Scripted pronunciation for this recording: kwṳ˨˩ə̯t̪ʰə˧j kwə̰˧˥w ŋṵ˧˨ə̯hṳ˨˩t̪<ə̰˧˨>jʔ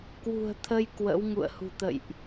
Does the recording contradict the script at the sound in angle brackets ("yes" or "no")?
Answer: no